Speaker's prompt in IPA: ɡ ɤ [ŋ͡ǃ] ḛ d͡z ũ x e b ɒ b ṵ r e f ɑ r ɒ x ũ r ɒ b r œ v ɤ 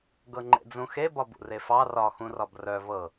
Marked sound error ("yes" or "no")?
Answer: no